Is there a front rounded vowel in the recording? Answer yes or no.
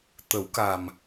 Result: no